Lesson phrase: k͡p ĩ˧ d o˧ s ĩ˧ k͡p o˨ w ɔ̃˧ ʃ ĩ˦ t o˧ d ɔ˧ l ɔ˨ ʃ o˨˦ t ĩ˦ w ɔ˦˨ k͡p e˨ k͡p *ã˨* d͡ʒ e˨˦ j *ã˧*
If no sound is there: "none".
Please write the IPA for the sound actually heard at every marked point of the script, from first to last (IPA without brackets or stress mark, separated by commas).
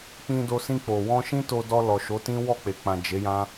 ã˨, ã˦